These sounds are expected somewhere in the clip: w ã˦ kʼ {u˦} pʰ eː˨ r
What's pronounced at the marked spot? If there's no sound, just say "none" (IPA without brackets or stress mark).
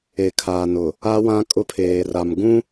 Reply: ʊ˦